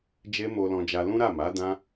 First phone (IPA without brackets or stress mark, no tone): d͡ʒ